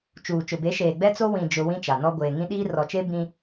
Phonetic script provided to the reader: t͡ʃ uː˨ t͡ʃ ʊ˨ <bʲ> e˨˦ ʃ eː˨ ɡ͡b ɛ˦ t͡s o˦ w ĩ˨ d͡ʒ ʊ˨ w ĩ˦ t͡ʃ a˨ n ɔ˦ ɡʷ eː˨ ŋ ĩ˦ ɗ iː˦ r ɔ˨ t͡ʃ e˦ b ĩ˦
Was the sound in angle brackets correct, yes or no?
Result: no